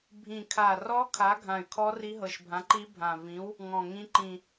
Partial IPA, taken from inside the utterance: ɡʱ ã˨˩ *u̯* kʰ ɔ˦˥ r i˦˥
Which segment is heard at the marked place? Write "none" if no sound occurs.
y̯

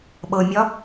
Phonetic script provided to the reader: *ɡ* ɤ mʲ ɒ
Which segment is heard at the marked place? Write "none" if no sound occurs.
ɓ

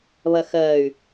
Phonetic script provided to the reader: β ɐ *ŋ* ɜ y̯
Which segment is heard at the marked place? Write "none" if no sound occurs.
x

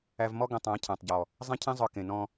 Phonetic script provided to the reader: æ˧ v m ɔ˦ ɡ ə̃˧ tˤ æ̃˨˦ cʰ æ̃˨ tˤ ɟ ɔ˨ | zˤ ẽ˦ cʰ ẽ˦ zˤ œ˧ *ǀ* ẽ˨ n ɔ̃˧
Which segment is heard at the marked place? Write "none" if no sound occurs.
k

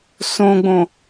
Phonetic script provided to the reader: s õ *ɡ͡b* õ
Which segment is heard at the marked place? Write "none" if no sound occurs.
ɡ͡b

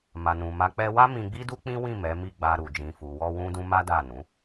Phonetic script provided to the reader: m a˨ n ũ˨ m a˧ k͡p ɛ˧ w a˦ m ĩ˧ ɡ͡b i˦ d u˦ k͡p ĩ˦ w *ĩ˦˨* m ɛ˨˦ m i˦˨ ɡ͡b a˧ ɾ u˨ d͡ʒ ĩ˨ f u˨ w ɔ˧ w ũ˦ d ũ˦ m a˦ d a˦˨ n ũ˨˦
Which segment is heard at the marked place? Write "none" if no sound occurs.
ĩ˦˨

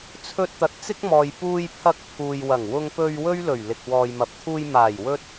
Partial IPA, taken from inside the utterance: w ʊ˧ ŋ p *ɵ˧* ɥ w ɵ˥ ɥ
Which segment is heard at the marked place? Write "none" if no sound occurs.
ɵ˧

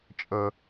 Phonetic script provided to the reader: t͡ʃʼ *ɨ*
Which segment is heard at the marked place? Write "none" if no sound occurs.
ə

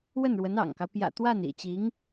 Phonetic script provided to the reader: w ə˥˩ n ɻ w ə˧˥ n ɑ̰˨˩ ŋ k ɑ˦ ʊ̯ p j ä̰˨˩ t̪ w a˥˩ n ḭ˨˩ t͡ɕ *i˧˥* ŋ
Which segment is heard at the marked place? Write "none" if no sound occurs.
i˧˥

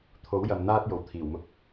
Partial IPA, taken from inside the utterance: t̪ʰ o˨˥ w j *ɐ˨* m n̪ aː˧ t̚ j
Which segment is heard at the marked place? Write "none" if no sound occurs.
ɐ˨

